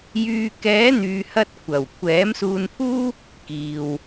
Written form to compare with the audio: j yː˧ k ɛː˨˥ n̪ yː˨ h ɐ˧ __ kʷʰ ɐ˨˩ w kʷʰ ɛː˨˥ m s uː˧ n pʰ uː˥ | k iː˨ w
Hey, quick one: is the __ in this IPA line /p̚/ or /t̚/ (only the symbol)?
t̚